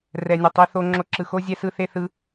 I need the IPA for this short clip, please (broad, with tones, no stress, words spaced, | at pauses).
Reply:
rɛ˧nʲʌ˧tˤi˦ θo˧ ŋ͡ǁo˧ǁɯ˨xo˦ zʲɛ˦sɯ˦θe˦ θɯ˧